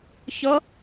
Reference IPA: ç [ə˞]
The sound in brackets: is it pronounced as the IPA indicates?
no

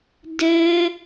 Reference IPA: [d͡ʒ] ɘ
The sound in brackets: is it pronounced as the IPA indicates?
no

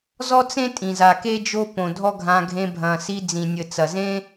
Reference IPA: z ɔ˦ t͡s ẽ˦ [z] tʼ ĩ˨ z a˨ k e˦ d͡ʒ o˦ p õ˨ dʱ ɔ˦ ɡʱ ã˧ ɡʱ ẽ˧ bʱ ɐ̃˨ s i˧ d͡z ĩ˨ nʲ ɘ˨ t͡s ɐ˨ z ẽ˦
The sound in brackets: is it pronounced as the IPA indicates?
no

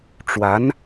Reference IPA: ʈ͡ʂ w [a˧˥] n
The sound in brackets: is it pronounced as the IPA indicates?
yes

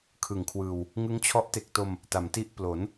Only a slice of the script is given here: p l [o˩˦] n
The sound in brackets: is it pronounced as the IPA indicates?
yes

